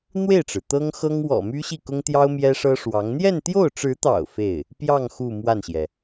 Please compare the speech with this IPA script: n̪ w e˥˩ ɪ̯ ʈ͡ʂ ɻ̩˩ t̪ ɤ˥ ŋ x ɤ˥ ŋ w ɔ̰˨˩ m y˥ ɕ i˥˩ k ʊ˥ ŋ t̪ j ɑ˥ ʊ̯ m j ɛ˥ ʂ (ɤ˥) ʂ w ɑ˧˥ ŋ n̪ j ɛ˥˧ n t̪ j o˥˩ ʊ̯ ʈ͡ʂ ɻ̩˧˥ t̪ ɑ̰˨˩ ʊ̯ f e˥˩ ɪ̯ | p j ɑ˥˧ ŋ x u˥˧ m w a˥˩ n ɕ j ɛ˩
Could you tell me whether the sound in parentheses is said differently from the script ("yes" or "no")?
no